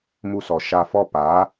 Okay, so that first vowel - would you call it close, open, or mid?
close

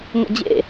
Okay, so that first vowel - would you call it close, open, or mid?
mid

